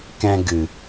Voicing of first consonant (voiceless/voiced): voiceless